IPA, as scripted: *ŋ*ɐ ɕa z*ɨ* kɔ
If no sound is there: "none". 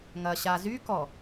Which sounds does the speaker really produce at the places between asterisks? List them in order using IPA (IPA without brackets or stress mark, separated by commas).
ŋ, y